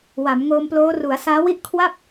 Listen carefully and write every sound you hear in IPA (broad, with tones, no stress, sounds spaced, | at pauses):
w a˩˦ m ŋ oː˧ m p l oː˦˥ r u˩˦ a̯ s aː˦˥ w i˥˩ ʔ kʰ w a˥˩ p̚